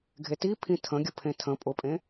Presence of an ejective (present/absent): present